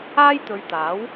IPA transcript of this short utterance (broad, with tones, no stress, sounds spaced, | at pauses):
aː˥ j t̪ ɵ˨˧ ɥ t̪ aː˨˥ w